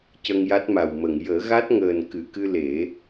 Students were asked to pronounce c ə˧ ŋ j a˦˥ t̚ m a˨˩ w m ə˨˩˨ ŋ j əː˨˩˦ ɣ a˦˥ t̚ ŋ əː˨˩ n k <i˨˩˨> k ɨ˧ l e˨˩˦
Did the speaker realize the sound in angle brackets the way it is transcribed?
no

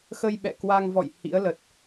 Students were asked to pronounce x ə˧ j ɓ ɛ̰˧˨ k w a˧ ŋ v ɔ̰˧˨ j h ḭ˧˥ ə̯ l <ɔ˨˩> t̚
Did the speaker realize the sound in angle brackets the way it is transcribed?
no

